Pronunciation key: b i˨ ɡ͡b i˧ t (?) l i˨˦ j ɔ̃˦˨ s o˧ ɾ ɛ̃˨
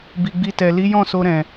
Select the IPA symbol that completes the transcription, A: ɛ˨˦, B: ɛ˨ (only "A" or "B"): B